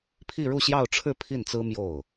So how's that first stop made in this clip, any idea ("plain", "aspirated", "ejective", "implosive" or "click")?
aspirated